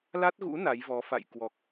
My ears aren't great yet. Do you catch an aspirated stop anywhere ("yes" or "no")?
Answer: no